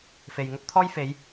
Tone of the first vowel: low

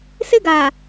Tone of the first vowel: high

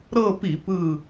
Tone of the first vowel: falling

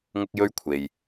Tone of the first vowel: high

